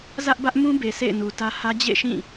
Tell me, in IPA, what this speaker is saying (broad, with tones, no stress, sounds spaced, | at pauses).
z ä˦ ʔ b ä˦ ʔ m ũ˦ b e˨ s ḛ˦˨ ɪ̯ n u˨ t ä˦ h ä˦ d͡ʑ ḛ˦˨ ʃ ĩ˦˨